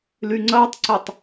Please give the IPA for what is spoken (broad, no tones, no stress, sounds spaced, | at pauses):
l y ŋ͡ǀ ɐː tˤ ǀ ɛ tˤ